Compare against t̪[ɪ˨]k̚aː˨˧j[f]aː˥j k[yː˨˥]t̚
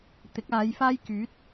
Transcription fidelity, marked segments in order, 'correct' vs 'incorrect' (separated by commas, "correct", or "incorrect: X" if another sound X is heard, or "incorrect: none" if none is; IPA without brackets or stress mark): incorrect: ɪ˨˥, correct, correct